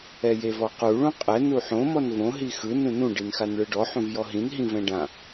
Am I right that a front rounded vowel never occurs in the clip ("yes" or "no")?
yes